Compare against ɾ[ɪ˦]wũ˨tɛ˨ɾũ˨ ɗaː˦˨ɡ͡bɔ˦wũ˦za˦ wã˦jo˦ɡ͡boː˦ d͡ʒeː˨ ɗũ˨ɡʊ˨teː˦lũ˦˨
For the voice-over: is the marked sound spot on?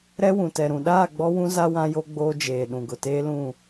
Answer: no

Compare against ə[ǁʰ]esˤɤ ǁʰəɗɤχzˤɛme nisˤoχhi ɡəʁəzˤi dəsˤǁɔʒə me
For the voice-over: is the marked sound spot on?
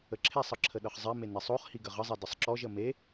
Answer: yes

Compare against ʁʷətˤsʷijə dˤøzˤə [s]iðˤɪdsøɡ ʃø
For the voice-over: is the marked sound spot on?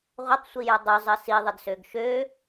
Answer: yes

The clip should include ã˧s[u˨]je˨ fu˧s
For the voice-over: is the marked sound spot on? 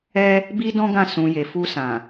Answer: no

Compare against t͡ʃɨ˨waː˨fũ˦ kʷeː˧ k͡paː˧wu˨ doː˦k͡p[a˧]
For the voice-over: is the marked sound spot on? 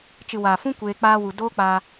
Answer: no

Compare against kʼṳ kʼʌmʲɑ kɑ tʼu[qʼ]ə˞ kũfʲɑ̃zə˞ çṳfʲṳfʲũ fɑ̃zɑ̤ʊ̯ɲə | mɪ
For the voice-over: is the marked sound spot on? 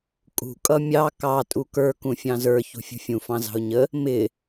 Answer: no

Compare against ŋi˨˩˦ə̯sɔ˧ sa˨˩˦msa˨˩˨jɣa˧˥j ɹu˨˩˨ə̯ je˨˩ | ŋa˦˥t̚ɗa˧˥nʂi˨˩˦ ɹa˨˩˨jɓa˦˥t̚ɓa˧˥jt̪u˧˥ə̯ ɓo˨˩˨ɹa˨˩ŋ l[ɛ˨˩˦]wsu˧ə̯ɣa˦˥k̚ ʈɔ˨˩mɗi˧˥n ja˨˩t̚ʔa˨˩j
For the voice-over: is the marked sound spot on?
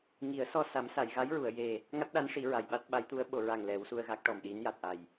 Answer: yes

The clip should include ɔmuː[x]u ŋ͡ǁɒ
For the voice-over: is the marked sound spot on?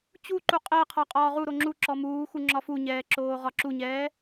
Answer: yes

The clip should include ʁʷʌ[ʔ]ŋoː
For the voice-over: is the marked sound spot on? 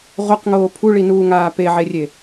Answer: no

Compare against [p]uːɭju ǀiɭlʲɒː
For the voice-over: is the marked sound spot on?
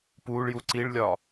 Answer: yes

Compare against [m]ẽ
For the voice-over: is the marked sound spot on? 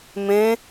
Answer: yes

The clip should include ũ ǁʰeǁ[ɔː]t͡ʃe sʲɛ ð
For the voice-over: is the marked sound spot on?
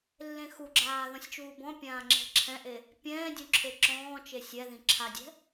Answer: no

